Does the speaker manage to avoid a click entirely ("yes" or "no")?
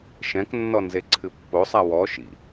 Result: no